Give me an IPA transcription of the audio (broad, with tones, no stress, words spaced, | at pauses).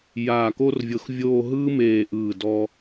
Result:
jaː˧˩ko˥rvʲɤ˧xvʲoː˥˧ ɦɯː˥meː˧˩ ʔɯː˧˩dɔ˧